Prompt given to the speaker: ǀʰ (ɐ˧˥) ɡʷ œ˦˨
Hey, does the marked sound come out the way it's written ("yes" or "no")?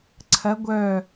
yes